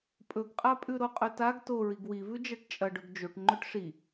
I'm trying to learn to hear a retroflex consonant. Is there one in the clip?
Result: yes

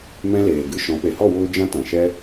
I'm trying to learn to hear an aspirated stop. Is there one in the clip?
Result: no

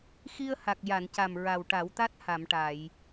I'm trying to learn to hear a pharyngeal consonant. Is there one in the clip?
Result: no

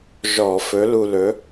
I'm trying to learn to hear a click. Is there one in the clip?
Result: no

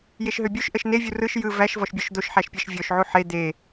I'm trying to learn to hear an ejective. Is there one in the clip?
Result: no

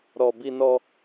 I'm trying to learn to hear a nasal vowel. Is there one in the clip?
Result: no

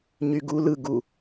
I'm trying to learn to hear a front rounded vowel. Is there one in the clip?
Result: yes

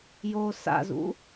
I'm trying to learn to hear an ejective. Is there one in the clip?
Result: no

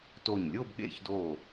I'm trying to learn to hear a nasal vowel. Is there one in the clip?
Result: no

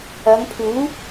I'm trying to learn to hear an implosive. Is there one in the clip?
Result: no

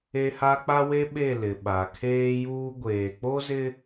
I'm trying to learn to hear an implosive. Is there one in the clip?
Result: yes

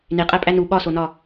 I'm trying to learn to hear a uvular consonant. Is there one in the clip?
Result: yes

